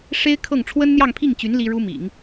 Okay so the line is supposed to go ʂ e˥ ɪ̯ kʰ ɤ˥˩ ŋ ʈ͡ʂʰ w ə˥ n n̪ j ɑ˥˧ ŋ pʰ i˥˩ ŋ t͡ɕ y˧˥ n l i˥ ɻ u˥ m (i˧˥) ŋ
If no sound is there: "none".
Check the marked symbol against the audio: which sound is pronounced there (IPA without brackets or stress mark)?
ḭ˨˩˦